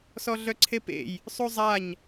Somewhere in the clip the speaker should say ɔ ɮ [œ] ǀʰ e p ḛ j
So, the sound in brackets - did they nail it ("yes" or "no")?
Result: yes